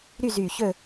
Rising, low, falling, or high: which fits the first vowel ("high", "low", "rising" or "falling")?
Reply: falling